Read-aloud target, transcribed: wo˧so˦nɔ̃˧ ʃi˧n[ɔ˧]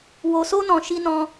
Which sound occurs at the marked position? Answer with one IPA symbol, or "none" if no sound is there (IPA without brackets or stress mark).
ɔ̃˧